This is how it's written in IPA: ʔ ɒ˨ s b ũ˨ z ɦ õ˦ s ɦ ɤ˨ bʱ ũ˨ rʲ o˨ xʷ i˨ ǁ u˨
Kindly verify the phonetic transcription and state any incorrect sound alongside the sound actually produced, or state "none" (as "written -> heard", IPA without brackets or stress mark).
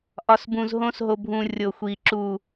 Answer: ɤ˨ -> o˨